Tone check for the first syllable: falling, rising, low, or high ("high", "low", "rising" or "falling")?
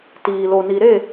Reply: low